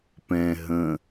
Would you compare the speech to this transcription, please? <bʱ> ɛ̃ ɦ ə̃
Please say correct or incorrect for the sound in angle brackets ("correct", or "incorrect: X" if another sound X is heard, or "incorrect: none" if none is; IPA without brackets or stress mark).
incorrect: p